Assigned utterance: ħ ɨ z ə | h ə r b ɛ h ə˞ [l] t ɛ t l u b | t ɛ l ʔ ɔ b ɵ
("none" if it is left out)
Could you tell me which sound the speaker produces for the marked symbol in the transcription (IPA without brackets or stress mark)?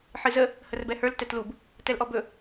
l